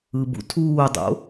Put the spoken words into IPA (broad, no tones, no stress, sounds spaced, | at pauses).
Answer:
ɯ b ṵ tʰ uː dˤ o̰